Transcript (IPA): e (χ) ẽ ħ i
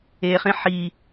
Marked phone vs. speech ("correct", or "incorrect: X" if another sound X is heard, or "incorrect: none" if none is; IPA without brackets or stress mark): correct